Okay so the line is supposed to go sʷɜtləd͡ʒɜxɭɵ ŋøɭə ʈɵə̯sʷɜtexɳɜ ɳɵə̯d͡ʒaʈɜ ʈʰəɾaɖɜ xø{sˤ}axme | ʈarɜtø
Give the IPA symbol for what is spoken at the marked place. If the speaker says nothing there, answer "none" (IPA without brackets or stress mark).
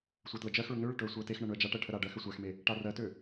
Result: sʷ